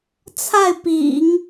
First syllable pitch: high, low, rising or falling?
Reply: falling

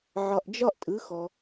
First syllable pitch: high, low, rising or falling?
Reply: low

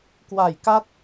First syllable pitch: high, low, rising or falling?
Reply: low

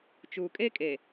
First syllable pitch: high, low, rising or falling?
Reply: low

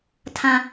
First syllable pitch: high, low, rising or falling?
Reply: low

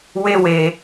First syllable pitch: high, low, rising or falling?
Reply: high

